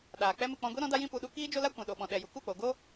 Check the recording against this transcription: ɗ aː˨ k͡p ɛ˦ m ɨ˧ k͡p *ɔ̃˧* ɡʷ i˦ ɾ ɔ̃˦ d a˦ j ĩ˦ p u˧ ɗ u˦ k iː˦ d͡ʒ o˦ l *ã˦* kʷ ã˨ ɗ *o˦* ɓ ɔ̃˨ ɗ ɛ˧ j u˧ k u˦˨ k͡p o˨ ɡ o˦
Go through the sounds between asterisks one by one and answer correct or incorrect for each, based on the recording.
correct, incorrect, incorrect

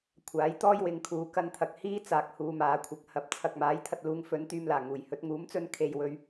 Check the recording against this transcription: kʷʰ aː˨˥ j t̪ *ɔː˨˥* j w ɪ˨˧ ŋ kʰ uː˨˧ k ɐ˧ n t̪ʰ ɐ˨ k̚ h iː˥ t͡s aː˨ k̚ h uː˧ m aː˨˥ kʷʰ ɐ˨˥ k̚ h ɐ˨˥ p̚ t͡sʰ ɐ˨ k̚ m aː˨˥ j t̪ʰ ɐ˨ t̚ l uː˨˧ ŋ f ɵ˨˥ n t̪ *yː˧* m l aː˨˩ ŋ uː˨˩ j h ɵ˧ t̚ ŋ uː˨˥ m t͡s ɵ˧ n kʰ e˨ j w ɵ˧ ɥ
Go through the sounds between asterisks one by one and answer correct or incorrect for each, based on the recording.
incorrect, correct

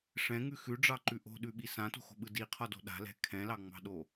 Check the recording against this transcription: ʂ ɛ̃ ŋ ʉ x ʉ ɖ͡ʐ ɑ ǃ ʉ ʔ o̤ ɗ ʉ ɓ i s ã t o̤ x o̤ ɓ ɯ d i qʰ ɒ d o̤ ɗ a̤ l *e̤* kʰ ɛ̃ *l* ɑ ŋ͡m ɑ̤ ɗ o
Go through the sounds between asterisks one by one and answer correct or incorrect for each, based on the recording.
incorrect, correct

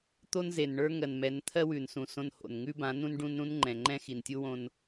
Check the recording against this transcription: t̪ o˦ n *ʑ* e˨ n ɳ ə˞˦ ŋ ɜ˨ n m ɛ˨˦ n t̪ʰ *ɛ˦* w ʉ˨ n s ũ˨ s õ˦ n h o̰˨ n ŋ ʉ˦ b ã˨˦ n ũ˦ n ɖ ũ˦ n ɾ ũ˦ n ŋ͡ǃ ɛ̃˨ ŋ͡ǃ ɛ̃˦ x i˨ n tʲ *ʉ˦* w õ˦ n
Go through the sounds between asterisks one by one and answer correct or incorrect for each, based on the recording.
incorrect, incorrect, incorrect

